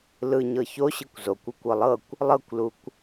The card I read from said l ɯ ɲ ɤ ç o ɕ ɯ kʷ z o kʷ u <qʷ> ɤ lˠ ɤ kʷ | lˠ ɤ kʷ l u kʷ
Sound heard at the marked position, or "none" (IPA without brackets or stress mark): kʷ